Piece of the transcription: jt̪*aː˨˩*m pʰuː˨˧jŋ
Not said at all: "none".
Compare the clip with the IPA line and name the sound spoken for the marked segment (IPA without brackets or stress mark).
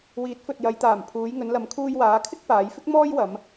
aː˨˩